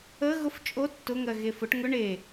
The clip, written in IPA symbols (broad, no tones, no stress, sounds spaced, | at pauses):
ə ɣ ʊ f t͡ʃʼ o tː ʊ ŋ ɜ ɣ e f ʊ ʈ ŋ ʊ ɳ e